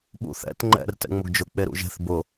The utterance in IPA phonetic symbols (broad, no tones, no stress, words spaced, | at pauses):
ɓṵθɛ̰t ŋ͡ǃɛ̰r tɛ̰ŋ͡mʊɡd͡ʒʊ k͡peɾṵʒe̤θ bʊ